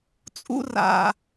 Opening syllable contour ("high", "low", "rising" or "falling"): high